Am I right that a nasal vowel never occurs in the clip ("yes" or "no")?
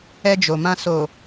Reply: no